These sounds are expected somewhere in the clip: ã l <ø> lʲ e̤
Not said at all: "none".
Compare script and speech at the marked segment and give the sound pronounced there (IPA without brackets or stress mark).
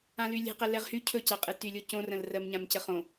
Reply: y